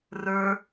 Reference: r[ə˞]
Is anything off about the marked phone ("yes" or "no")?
no